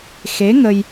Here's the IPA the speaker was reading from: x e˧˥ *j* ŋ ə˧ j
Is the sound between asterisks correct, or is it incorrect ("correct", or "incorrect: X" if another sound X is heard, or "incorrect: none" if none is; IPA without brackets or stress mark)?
incorrect: none